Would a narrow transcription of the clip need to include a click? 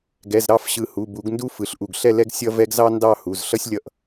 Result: no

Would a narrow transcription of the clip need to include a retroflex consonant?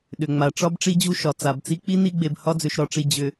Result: yes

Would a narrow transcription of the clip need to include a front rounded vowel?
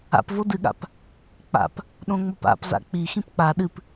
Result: no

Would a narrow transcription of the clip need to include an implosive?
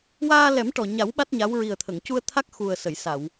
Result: yes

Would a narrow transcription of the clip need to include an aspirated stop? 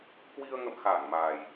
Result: no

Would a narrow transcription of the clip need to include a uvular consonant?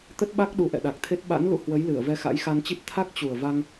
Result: no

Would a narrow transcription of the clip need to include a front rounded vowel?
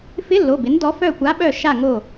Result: yes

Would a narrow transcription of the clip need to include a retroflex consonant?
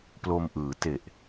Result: no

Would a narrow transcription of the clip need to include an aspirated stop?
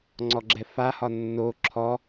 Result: yes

